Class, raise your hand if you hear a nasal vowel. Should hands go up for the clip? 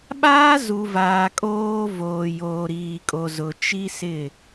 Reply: no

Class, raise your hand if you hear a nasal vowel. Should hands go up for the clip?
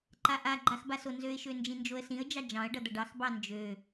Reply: yes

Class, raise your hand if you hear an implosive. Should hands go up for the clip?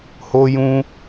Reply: no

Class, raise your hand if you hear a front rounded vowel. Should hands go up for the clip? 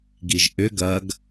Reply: yes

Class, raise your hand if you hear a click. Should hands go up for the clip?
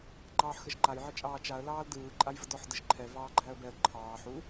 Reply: yes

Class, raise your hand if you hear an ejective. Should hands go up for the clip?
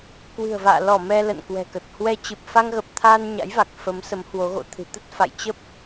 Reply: no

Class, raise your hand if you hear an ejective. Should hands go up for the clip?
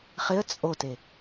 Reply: yes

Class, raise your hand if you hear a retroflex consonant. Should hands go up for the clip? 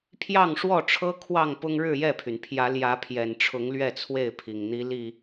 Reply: yes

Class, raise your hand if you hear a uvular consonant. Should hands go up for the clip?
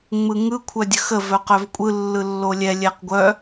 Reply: yes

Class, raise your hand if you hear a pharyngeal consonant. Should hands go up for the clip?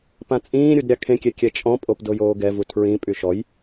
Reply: no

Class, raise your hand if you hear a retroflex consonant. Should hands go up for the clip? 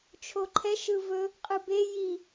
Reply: no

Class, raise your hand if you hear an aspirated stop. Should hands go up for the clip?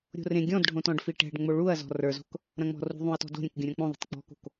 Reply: no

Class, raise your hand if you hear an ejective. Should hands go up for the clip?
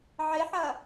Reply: no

